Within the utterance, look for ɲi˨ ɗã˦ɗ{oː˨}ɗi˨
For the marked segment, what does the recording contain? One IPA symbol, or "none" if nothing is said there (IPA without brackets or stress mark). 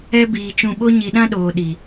oː˨